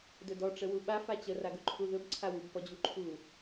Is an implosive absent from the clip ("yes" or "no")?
no